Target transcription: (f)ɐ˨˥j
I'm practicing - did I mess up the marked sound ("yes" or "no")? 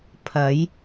yes